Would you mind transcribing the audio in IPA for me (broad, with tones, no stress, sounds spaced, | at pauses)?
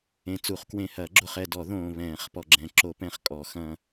ẽ˨ t͡s u˨˩˦ χ k w ẽ˨ h ɐː˨˩˦ ɡ͡ǁ o˨ χ ɛ˨ d ɔ˨˩˦ ð õː˨ β ɛ̃ː˨˩˦ χ p ɔ˨ ɡ͡ǁ ɛ̃˨˩˦ ǁ o˨˩˦ p ɛ̃˨˩˦ χ kʼ ɔ˨˩˦ x ɐ̃˨